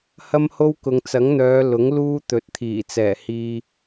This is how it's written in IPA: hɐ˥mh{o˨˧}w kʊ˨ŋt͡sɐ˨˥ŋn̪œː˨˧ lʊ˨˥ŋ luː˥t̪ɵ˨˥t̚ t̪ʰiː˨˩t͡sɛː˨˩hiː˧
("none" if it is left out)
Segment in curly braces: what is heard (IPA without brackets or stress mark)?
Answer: o˥